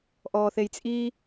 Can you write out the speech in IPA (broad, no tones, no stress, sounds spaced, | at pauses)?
ʔ ɔː θ e j t͡sʼ i